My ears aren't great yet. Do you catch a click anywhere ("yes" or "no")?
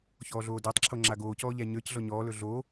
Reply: yes